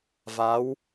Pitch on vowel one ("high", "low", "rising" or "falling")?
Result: rising